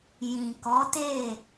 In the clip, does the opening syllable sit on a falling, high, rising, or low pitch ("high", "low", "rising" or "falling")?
low